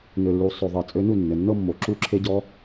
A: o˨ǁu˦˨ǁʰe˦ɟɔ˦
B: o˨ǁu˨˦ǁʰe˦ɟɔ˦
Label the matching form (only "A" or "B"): A